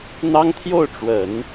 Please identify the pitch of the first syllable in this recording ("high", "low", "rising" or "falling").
high